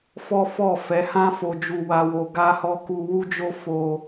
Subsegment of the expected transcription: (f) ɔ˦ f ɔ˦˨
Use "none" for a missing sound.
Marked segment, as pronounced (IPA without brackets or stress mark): f